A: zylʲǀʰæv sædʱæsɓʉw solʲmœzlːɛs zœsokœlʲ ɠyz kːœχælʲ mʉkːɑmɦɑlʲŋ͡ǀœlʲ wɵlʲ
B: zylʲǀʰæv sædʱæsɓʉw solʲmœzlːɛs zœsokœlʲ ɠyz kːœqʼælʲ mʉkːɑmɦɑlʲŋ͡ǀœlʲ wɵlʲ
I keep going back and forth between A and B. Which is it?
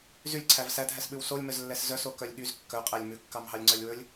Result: B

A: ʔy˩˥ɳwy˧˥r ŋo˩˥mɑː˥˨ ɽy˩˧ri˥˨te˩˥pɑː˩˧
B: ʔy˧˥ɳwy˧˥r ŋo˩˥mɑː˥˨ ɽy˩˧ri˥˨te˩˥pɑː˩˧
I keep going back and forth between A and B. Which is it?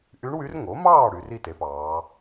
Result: B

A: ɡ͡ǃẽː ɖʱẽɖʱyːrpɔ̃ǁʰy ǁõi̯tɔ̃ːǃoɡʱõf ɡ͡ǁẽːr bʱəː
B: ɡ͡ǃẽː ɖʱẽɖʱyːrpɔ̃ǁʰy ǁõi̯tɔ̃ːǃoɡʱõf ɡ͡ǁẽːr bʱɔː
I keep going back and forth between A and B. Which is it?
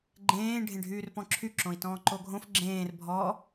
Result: B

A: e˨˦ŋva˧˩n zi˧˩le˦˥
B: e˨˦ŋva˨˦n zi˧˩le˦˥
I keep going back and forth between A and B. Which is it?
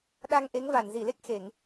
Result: A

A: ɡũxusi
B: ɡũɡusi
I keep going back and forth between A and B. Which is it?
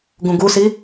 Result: B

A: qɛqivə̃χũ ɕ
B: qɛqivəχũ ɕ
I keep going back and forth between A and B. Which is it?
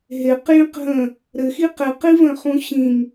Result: A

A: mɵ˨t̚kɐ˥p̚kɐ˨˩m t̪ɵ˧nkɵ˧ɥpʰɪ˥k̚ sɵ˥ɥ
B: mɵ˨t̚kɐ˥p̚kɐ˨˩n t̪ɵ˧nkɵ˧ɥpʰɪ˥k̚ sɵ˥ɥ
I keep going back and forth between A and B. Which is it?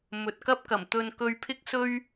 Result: A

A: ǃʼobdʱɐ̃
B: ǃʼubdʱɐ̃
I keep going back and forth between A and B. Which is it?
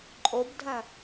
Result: A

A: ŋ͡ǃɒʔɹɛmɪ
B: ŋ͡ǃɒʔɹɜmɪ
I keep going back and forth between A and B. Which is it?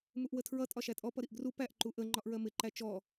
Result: B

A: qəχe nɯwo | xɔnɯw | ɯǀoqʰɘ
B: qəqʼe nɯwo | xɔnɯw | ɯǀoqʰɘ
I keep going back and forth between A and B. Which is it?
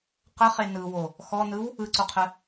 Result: A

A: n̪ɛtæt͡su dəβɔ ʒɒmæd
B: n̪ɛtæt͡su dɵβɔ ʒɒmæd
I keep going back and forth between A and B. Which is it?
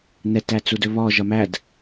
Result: B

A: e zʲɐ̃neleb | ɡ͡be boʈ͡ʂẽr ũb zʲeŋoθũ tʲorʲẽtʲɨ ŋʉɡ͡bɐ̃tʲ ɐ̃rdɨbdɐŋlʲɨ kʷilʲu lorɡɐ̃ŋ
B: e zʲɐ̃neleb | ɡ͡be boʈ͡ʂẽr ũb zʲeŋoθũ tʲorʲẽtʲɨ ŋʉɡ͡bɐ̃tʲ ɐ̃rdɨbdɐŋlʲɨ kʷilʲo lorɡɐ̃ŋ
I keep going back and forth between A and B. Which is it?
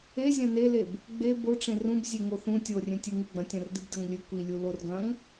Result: A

